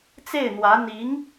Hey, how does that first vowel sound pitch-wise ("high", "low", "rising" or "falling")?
falling